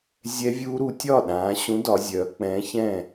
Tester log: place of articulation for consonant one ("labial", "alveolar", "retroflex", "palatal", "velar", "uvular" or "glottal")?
alveolar